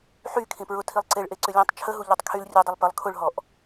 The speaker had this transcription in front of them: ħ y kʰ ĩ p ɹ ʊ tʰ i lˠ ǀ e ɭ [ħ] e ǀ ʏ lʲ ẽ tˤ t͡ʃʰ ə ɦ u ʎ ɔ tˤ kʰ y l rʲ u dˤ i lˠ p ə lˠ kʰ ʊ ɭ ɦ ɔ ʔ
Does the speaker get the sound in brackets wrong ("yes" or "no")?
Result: yes